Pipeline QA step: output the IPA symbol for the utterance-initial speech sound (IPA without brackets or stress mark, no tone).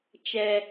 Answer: t͡ʃ